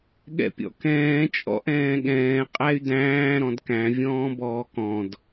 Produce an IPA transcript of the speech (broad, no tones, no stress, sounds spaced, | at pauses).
ɠ ɛ̰ pʲ ɔ̰ k ɛ̃ː t͡ʃʼ ɔ̰ ʔ ɛ̃ː ɠ ɛ̃ː qʼ æ y̯ d æ̃ː ɾ ɔ̃ d k æ̃ vʲ ɔ̃ː b ɔː k ɔ̃ d